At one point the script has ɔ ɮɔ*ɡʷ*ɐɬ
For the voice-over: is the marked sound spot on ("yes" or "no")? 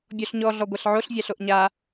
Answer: yes